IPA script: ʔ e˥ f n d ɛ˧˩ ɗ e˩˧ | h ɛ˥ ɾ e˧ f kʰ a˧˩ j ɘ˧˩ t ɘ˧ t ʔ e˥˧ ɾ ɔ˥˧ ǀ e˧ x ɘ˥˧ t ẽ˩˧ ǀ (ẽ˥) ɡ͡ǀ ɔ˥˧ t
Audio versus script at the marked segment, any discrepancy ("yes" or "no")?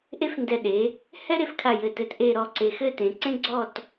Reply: no